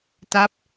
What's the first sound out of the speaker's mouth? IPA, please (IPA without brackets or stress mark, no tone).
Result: t